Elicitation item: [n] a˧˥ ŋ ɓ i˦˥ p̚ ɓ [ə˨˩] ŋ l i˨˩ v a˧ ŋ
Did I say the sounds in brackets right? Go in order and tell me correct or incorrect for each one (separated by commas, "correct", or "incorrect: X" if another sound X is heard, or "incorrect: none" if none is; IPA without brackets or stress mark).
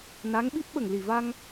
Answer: correct, correct